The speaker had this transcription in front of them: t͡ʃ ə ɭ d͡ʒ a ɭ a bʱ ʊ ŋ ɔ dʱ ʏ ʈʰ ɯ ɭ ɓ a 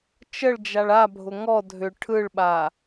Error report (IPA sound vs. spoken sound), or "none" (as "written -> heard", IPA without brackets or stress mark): none